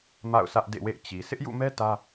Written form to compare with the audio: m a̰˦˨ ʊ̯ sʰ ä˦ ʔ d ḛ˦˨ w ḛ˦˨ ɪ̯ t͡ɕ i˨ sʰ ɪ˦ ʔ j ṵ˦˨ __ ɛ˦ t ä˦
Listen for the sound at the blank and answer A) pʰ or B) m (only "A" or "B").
B